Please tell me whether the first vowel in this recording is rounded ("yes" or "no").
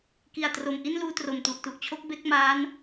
no